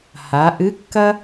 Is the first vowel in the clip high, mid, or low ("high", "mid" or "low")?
low